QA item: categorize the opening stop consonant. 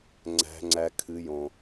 click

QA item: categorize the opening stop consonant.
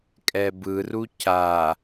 ejective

